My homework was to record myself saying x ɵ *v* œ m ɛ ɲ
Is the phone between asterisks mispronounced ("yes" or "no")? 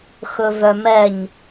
no